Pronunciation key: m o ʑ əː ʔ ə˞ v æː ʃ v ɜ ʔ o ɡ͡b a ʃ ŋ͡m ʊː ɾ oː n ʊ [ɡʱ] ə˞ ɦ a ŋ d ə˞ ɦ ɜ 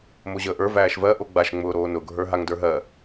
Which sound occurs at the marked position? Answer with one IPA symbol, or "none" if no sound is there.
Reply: ɡʱ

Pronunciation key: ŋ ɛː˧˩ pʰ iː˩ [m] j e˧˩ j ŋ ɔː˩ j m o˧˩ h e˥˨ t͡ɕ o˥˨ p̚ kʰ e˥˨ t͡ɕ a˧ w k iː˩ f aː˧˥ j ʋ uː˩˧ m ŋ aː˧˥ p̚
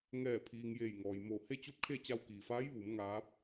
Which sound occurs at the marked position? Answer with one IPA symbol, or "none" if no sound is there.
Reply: ŋ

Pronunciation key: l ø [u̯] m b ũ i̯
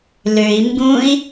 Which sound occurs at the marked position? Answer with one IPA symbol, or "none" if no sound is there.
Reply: i̯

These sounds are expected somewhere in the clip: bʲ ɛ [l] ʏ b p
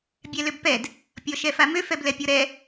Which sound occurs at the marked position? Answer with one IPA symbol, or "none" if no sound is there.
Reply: l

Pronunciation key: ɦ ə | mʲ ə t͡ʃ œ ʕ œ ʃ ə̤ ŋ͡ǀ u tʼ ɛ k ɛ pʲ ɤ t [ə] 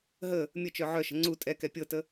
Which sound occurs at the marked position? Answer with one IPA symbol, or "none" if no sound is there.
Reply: ə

